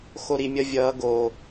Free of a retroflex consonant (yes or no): yes